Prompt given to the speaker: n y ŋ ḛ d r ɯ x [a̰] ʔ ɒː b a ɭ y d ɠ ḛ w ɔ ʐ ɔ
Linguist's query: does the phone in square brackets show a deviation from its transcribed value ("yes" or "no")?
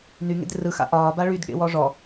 no